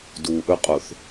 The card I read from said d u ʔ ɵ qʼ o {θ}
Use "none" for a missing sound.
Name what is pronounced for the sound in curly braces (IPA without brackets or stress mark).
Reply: θ